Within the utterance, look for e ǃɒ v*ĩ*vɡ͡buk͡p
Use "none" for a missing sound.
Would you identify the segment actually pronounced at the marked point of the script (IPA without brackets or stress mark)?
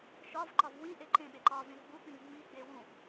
ẽ